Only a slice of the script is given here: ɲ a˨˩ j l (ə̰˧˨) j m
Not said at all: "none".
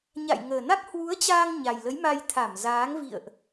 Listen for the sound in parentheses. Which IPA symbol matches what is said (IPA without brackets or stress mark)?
ə˨˦